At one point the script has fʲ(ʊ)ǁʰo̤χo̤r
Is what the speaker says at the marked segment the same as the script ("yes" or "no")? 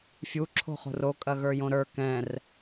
no